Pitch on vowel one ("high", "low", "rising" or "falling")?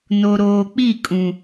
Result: low